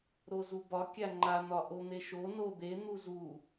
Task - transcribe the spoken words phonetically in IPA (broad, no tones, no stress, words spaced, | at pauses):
ɾozubɒ kʲaŋ͡ǃa n̪ɒʔon̪eʃo no d̪e n̪uzu